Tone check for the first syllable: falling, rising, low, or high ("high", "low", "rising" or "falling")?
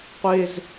high